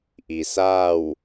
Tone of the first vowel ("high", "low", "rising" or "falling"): low